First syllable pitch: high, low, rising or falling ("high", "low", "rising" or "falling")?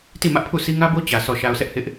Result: falling